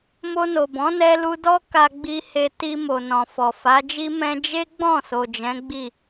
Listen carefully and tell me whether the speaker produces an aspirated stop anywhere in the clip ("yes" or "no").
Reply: no